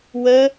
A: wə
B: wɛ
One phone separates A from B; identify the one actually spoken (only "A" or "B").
A